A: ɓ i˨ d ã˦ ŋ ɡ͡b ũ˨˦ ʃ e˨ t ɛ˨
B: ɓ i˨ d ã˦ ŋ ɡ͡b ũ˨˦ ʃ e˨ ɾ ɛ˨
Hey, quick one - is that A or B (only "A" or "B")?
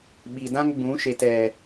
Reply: A